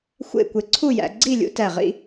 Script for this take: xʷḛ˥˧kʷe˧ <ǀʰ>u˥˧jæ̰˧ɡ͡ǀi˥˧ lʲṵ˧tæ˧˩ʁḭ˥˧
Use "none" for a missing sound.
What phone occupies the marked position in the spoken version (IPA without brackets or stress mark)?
ǀʰ